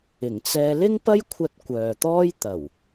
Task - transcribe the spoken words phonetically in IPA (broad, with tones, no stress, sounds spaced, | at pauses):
ɪ˨˩ ŋ t͡s ɛː˧ l ɪ˥ ŋ p ɐ˥ j kʷʰ ɐ˧ t̚ kʷ œː˨ t̪ ɔː˥ j t̪ ɐ˨˩ w